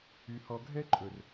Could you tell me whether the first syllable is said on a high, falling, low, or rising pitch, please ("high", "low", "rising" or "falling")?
low